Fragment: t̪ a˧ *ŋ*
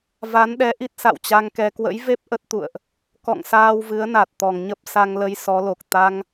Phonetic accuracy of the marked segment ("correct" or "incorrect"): correct